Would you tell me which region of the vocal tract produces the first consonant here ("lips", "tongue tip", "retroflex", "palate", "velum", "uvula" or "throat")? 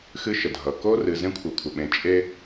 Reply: velum